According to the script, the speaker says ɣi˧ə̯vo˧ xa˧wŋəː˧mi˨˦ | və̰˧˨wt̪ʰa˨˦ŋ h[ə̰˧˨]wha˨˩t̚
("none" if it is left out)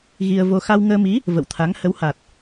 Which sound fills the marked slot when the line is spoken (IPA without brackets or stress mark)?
ə˨˦